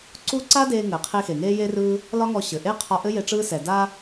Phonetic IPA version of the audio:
ǀu˥ ǀa˥deː˧ ŋɘ˩ qʰe˧ xe˩ŋeː˥je˥rɯː˥ | lɒ˥ŋɔ˧ ɕɘ˩ʔe˥ qʰɒ˧ʔɘ˥je˧ ʈ͡ʂɯː˥sɛ˩ da˥

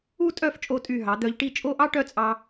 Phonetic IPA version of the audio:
u˥˧ tʼœ˥˧ft͡ʃʼo˧ tʼy˧˩ɦɑ˩˧ d̪œ˧ʎʈi˥˧ t͡ʃʼo˥˧ʔɑ˥ʈœ˥˧t͡sʼɑ˧

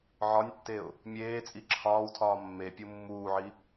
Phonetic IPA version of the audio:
ʕɒnʲtːeʊ̯ | mʲeːt͡sʼi ǁʰɒːwtʰɒː mːepʲu mːuːʕi

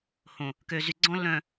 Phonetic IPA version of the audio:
hõ˨ | kø˨zy˨ɡ͡ǀɔ̃˦ lːœ̃˨

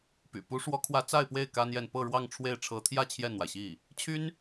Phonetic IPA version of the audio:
py̰˨˩ pu˧˥ʂwɔ˧˥kʰwä˧˥ t͡sa˥˧ɪ̯pwe˥˩ɪ̯ ka˥njɛ˥˧n pɤ˥˧ɻwɑ˥˧ŋʈ͡ʂʰwe˥˩ɪ̯ ʈ͡ʂʰɤ˧˥t̪ʰjä˥˧ t͡ɕʰjɛ˥˩nn̪wa˩ɪ̯ɕi˥˩ | t͡ɕʰy˥n

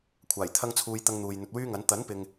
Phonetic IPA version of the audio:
kʷʰaː˨˩jt̪ʰɐ˥ŋt͡sʰuː˧j t̪ɐ˥ŋn̪uː˧j n̪ɵ˨t̚wyː˥ŋɐ˨˥n t̪ɐ˨˥npɪ˨ŋ

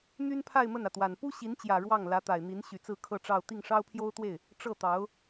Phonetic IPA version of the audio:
n̪y˥npʰa˥˧ɪ̯ mə˥˩nä˩t̪wa˨˩n pu˥ɕi˧˥nt͡ɕjä˨˩ ɻwɑ˥˩ŋ lä˧˥t̪a˨˩ɪ̯n̪i˧˥n ɕy˧˥t͡sɹ̩˥˧ kʰɤ˥˧ʈ͡ʂɑ˥˧ʊ̯ t̪i˥˩ŋʂɑ˥ʊ̯pʰjo˥ʊ̯t̪we˥˩ɪ̯ | ʈ͡ʂɤ˥˩t̪ɑ˧˥ʊ̯

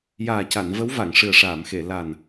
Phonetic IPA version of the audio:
jaː˨˩ca˨˩˨n və˧˥wva˨˩˨ŋ ʂɨ˨˩ə̯ʂaː˨˩˨mxe˨˩˨ la˨˩n

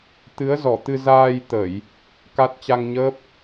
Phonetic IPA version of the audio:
t̪ɨ˨˦ə̯zɔ˧˩t̪ɨ˧ zaː˧jt̪ə˧˩˨j | ka˦˥t̚ t͡ɕa˧ŋɲəː˦˥p̚

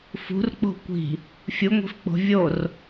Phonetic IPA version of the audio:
fṳrk͡po̤ kʷi̤ | fʲuŋʷi̤fk͡po̤ vʲor

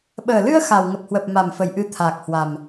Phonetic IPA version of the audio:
ɓəː˨˩lɨ˧ə̯ xa˨˩w ŋə˨˩p̚hwə˨˩p̚ma˨˩mfə˨˩j ʔɨ˧t̪ʰaː˨˩k̚hwa˨˩m

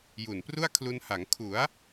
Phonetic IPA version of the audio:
ju˨˩npru˥˩a̯kʰlu˧nha˩˦ŋ kʰu˩˦a̯

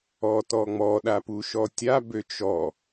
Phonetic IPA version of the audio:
ɔtɔŋ͡mɔ ɗapuʃɔtʲa bøt͡ʃɔ

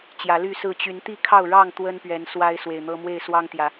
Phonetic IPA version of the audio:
t͡ɕjä˨˦ly˥˨sɹ̩˥˨ t͡ɕy˨˦nt̪i˥˨kʰɑ˥˨ʊ̯ɻɑ˥˨ŋ t̪wə˦npɥɛ˨˦n swa˦ɪ̯swe˨˩ɪ̯n̪ɤ˦ mwe˥˨ɪ̯swɑ˦ŋt̪jä˨˦

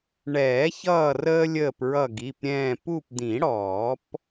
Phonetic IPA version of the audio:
ɳɛː˨˩˦çʌː˦˨rəː˦ lʲəː˦˨pɹʌ˦˨ɡi˩˧˩pɾʲɛ̃ː˦˨ pu˦˨pd̪ĩ˨˩˦ɽɔː˨˩˦p

